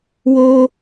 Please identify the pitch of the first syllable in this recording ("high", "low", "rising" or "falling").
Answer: high